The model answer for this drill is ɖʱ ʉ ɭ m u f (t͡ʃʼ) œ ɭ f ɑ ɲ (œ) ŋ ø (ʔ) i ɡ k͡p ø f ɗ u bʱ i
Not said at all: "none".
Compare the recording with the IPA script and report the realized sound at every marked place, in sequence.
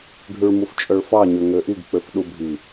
t͡ʃʼ, ø, ʔ

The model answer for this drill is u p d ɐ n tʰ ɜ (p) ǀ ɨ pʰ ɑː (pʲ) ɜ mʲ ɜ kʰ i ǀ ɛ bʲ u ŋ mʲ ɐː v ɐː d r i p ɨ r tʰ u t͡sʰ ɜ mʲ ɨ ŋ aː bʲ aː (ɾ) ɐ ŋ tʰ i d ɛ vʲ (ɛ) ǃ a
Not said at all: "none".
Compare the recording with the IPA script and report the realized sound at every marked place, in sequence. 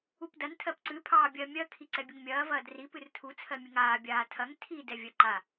p, bʲ, tʰ, ɜ

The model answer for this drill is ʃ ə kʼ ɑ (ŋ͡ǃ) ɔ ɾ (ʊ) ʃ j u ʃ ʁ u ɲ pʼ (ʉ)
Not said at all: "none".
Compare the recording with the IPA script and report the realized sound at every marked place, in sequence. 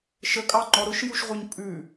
ŋ͡ǃ, ʊ, ʉ

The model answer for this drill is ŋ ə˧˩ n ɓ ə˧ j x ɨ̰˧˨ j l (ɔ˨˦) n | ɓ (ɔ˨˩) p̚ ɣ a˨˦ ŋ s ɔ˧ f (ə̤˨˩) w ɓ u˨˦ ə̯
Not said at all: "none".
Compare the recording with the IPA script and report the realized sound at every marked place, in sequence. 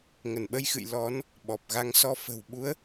ɔ˨˦, ɔ˨˩, ə̤˨˩

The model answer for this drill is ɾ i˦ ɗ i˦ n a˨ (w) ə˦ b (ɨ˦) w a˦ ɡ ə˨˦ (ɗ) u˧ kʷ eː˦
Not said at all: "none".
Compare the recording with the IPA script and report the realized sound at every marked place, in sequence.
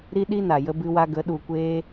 j, ɨ˦, ɗ

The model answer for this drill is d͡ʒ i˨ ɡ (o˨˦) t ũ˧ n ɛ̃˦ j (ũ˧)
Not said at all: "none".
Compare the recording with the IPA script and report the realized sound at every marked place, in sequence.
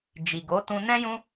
o˨˦, ũ˦

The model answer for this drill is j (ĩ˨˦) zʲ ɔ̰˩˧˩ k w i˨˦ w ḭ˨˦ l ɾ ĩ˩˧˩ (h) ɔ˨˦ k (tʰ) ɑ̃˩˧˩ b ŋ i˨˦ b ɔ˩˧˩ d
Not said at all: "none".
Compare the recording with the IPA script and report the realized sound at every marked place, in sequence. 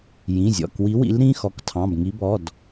ĩ˩˧˩, x, tʰ

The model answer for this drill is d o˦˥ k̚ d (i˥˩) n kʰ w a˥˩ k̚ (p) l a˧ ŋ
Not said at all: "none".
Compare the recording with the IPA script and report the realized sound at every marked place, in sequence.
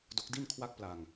i˥˩, p

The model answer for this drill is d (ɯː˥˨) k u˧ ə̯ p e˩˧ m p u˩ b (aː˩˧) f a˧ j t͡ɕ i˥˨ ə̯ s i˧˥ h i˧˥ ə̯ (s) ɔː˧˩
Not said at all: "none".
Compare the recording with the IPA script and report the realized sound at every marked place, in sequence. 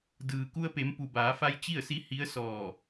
ɯː˩, aː˩˧, s

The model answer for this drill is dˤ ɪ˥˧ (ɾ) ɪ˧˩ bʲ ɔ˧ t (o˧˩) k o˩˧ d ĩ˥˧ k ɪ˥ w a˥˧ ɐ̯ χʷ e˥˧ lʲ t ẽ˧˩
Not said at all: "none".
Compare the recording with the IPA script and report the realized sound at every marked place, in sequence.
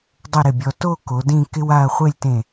ɾ, o˥˧

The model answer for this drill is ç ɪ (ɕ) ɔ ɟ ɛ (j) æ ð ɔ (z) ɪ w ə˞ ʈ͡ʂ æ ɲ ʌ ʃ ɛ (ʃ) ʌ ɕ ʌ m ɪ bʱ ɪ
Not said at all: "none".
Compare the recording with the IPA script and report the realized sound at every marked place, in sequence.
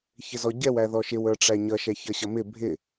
z, w, ʃ, ç

